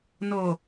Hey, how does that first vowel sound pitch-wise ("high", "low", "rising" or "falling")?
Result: low